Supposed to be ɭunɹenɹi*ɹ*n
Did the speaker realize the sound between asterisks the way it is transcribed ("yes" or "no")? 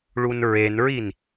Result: no